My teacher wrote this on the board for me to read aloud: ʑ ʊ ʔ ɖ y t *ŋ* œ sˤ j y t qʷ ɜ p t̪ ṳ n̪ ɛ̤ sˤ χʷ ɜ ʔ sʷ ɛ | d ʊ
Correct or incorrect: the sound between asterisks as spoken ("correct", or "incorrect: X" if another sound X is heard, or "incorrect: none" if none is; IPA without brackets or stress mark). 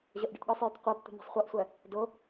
incorrect: ɠ